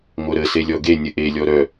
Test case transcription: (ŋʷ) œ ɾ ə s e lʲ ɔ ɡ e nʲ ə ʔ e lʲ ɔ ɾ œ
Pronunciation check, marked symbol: correct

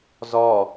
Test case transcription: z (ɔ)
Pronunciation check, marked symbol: correct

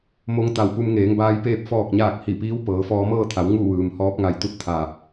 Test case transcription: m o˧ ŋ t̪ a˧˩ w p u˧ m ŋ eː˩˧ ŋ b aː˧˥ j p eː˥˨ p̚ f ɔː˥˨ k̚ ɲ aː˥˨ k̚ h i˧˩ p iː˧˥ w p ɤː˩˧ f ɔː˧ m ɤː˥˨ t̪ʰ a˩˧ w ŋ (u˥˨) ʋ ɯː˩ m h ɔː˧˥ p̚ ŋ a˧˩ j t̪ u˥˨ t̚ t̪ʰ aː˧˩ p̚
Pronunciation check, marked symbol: correct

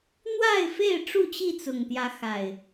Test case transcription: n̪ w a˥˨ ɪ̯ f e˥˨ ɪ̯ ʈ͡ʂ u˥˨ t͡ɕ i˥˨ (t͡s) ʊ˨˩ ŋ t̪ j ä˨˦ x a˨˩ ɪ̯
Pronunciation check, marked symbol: correct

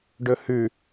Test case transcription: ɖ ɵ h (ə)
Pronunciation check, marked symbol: incorrect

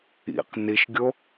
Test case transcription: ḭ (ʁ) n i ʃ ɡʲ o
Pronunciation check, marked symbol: incorrect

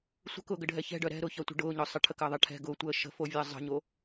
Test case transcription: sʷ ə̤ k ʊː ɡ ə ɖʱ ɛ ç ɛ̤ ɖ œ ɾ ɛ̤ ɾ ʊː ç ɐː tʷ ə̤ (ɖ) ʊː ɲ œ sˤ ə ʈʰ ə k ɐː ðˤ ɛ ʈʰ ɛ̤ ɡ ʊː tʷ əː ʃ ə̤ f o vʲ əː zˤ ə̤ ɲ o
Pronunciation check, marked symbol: correct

